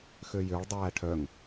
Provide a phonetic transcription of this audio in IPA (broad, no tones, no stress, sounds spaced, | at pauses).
x ø j ø ɭ dˤ æː ʈʰ œ ŋ